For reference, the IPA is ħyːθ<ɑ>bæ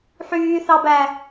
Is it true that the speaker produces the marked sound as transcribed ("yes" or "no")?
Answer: yes